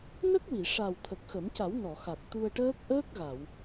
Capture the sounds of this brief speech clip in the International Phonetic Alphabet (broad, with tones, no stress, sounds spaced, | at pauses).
n ə˦˥ k̚ w i˨˩˨ ʂ a˨˩ w t̪ʰ ə˨˩ k̚ x ə˨˩˦ m c a˨˩˦ w n ɔ˨˩˨ x a˨˩ k̚ t̪ u˧ ə̯ ʈ əː˦˥ k̚ ʔ əː˦˥ k̚ ɣ a˨˩˨ w